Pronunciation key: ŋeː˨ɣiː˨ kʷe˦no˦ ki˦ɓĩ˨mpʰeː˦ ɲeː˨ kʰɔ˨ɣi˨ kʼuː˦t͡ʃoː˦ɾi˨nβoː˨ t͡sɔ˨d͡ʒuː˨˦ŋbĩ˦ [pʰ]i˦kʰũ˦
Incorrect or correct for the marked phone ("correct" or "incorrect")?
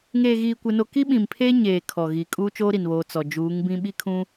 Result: incorrect